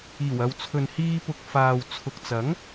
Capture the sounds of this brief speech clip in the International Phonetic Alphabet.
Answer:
iː˨˩ w ɐ˨ w t͡sʰ ɵ˨ n h iː˧ p ʊ˨ k̚ f aː˨ w t͡sʰ ʊ˨ k̚ t͡s ɐ˨˥ ŋ

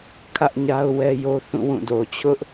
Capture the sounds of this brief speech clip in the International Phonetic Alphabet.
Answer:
kʰ ä˦ ʔ ɲ a˦ ʊ̯ w ɛ˦ j o˦ θ ũ˦˨ w ũ˦˨ d o˨ t͡ɕʰ ʊ˦ ʔ

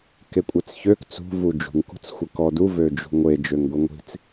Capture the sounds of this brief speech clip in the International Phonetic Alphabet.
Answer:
k e kʷʼ ɛ t͡s ç ø k t͡s ṳ v u d͡ʒ ṳ ŋ k ṳ t͡s xʷ ɛ k ɔ d u v ø d͡ʒ ṳ ŋʷ e d͡ʒ ø ŋ ɡʷ i ŋʷ i̤ t͡s

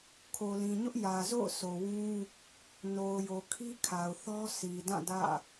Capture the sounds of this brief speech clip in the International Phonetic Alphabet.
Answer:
kʰ o˨ l ĩ˨ ɲ ʊ˦ ʔ j ä˨ z o̰˦˨ ʊ̯ s o˨ w ũ˦ | n o˨ ʊ̯ j o˨ kʰ i˦ kʰ a˨ ʊ̯ θ ɔ˦ sʰ i˨ d ã˦˨ d ä̰˦˨

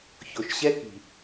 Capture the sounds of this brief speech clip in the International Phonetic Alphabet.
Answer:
ç o˨ ʃ ɕ ɛ˦ k i̤˨

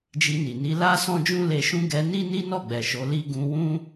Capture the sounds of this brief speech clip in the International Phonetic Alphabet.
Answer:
d͡ʒ i˧ n i˨ n i˨˦ l a˦ s ɔ̃˦ d͡ʒ ũ˦ l e˧ ʃ ũ˦ ɡ ɛ˧ n i˦ n i˦ n ɔ˦˨ ɡ͡b ɛ˨ ʃ o˨˦ l i˦ ɡ ũ˧ w ũ˦

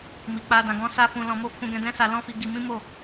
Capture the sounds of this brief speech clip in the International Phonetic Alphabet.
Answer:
m i˨ k͡p a˧ d ã˨ ɡ ɔ̃˧ s a˧ f ũ˧ l ɔ̃˧ m o˦ f ũ˧ ɡ ɛ̃˧ d ɛ̃˦ s a˧ l ɔ̃˦ f i˧ ɡ i˧ m ĩ˦ m o˦˨

